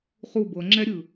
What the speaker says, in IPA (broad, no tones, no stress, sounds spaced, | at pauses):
χ u b ɤ ŋ͡ǁ ɛ ɾʲ ɯ